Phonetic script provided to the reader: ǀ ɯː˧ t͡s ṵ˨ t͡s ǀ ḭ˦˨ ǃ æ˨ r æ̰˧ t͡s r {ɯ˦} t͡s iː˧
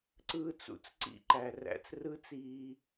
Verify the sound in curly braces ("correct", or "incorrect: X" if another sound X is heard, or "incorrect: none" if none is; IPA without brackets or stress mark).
correct